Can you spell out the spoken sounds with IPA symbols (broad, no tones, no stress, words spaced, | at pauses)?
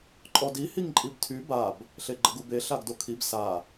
ǃʼɔdi hiŋǃʼibtʰy bab | ɬeɡ͡ǃəɡube ɬaɡdokʰib sa